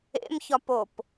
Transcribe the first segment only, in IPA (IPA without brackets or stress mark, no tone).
ḛ